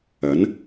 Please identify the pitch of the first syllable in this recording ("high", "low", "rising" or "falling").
rising